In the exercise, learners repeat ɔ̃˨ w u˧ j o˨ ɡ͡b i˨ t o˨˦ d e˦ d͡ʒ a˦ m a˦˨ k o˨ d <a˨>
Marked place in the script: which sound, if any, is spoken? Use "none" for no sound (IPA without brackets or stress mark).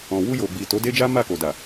a˨